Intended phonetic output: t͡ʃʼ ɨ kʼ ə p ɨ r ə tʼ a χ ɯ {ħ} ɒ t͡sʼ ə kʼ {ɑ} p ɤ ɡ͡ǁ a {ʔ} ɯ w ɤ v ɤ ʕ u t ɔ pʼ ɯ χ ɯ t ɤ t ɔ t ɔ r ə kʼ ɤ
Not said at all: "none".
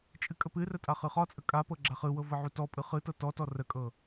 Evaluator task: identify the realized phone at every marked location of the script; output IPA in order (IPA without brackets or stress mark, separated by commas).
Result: χ, a, χ